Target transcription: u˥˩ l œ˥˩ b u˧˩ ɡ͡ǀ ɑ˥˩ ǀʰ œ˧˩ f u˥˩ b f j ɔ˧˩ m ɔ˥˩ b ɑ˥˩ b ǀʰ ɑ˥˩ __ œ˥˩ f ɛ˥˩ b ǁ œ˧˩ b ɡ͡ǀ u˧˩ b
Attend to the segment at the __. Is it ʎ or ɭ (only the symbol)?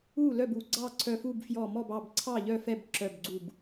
ʎ